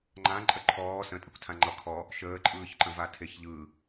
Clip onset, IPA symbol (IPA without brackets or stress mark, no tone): ŋ͡ǃ